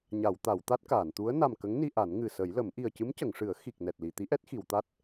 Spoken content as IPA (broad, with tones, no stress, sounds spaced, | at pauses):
ɲ a˨˩˨ w t̪ a˨˩˨ w t̪ a˦˥ t̚ k aː˨˩˨ n t̪ u˧˥ ə̯ n a˨˩ m k ə˧˥ ŋ n i˧ ʔ a˨˩˦ n ŋ ɨ˨˩ s ə˨˩˦ j l ə˨˩˦ m ʔ i˨˩ ə̯ c ɨ˧˥ m c ə˨˩˨ ŋ ʂ ɨ˨˩˦ ə̯ x i˨˩ k̚ n ɛ˨˩ t̚ l i˨˩˨ t̪ i˧˥ ʔ ɛ˦˥ t̚ x i˨˩˨ w t̪ a˦˥ t̚